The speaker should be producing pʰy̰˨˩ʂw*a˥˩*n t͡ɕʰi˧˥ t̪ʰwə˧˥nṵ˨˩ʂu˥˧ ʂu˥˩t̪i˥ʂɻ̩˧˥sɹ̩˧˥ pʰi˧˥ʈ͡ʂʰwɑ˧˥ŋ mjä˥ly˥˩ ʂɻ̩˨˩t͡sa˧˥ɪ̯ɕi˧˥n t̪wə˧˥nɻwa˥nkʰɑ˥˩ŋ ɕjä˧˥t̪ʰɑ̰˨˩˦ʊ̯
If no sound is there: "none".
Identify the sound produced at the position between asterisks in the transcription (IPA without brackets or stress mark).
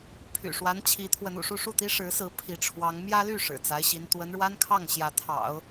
a˧˥